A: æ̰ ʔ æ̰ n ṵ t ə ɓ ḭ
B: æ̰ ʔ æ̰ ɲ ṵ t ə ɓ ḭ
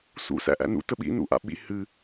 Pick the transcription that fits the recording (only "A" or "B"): A